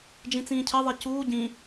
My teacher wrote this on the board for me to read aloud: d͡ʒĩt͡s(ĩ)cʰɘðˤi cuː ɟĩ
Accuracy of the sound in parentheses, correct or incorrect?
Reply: incorrect: ĩː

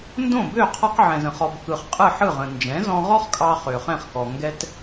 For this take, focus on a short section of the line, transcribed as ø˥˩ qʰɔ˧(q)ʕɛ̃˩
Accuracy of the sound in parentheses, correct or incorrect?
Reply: correct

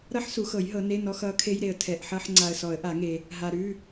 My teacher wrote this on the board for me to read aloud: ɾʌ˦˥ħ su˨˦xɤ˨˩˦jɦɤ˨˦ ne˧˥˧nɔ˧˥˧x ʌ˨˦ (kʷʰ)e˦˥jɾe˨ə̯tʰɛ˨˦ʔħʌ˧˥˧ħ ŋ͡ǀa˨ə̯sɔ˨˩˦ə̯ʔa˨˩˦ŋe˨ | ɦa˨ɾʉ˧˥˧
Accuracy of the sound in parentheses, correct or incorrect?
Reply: incorrect: kʰ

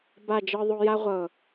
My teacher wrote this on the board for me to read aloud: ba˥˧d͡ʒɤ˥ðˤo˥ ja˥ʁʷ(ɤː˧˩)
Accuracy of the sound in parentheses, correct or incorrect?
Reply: incorrect: ɤ˧˩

